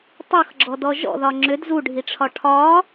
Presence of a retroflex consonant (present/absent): present